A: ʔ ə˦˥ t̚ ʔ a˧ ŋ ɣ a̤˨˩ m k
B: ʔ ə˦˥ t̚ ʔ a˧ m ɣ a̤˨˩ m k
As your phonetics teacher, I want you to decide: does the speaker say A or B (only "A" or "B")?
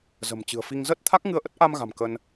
B